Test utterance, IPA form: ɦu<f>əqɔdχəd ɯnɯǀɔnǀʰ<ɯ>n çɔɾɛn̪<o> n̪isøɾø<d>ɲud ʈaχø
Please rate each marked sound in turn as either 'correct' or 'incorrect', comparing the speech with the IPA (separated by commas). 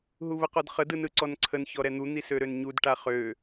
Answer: incorrect, incorrect, incorrect, incorrect